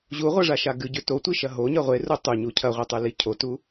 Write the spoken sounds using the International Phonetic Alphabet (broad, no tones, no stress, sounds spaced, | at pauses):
ʑ u ʁʷ ɐ ʐ a ʃ a ɡ ɨ ɟ ʉ t o tʷ i ʃ ɐ ɦ o ɲ ɐ ʁʷ e r u tˤ u ɲ u cʰ ɐ ʁʷ e tˤ ʉ l i cʰ o t u